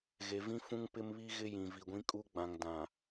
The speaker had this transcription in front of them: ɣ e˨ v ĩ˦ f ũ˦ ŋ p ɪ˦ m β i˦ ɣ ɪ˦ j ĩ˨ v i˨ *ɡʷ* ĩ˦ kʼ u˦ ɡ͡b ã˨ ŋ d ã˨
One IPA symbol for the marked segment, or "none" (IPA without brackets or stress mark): ɡʷ